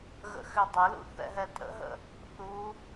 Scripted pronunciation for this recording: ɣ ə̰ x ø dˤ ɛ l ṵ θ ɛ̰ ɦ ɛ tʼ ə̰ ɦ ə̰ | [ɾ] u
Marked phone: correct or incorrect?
incorrect: θ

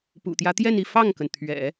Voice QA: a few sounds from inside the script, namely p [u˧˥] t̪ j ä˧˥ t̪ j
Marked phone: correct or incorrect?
incorrect: ṵ˨˩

